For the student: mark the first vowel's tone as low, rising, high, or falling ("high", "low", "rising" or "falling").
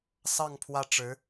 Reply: falling